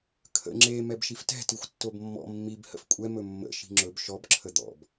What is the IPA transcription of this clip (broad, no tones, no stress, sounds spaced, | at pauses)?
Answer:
kʰ ə̰ ŋ͡ǁ e m ɛ b ʃ i f t ɛ̤ t i xʷ tː o b mː ɔ̰ mː i b h ə̰ f kʷʼ ɛ m ɵ mː ə̰ ʃ i̤ ŋ͡ǁ ɵ b ʃ ɔ b ǁʰ ə d̪ ɔ̰ b